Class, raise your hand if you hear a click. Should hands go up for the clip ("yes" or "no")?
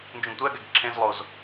yes